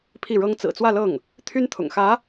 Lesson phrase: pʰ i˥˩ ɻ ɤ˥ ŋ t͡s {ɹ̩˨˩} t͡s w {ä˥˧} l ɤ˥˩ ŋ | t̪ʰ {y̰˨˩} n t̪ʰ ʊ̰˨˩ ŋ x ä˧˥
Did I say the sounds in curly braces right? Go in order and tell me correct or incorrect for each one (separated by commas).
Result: correct, correct, incorrect